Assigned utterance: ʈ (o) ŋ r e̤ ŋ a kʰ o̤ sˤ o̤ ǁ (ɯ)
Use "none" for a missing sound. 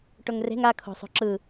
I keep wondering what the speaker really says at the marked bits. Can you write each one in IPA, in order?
o, ɯ

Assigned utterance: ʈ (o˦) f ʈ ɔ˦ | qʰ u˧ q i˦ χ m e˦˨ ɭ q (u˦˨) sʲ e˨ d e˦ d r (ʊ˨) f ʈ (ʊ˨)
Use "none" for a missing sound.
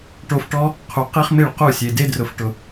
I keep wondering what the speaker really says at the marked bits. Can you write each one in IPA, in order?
o˧, u˦˨, ʊ˨, ʊ˨

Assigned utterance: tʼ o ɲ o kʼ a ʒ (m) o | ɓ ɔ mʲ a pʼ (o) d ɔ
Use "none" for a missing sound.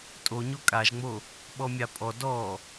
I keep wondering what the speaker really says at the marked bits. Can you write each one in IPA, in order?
ŋ͡m, ɔ

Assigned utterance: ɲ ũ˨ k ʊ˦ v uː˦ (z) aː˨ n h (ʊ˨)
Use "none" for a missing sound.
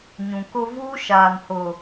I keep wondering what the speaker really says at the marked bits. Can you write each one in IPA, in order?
ʃ, ʊ˨

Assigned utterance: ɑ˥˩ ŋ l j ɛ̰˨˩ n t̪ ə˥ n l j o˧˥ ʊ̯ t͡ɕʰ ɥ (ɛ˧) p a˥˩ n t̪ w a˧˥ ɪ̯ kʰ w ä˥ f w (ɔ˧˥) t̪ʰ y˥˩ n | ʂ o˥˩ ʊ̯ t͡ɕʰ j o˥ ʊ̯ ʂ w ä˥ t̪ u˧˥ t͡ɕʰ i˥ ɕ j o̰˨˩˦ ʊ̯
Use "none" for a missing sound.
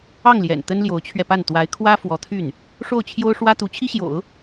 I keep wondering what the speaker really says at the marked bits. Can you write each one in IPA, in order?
ɛ˧, ɔ˧˥

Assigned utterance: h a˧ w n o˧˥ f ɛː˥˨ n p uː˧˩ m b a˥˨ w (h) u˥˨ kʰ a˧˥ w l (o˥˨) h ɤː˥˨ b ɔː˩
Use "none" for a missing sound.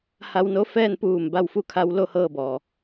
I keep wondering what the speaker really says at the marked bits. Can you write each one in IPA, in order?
f, o˥˨

